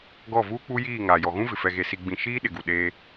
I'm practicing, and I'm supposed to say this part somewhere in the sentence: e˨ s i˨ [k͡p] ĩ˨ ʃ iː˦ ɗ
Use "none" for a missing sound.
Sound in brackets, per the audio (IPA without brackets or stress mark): ɡ͡b